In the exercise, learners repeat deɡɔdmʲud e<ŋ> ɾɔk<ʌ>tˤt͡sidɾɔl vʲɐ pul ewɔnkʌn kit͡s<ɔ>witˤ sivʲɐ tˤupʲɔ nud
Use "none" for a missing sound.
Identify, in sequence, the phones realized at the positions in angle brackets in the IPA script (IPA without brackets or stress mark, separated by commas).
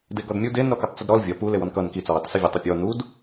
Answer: n, ʌ, ɔ